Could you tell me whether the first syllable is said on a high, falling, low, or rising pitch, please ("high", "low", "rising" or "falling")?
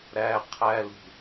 low